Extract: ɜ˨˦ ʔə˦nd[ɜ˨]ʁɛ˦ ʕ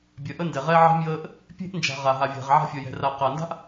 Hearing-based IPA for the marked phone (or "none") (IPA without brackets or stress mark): ɛ˨